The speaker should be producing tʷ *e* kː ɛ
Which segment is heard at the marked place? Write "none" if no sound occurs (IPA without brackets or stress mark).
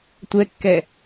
ɛ